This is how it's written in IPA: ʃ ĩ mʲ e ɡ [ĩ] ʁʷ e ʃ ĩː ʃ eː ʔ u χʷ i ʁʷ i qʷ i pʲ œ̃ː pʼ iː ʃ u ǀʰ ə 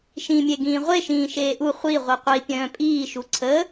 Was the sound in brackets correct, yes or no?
no